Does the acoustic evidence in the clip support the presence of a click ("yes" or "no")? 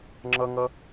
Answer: yes